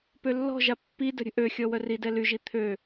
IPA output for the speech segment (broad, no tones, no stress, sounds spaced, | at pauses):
p ø lː ɔ̤ ʒ a pː i d ə̤ ɾʲ ə̤ ʔ ø xʲ ɔ w œ r i d ɛ l y ʒ i t̪ʰ ø